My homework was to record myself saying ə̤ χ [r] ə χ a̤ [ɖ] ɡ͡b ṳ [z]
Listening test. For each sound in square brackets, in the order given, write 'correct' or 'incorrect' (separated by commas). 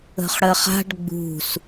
incorrect, correct, incorrect